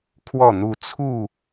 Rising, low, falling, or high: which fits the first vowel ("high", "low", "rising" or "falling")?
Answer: falling